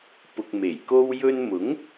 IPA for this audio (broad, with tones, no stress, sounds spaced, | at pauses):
p ʊ˧ k̚ m e˨˩ j k o˧ w j ɵ˧ n m ʊ˨˥ ŋ